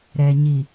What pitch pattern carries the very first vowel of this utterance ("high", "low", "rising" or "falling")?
low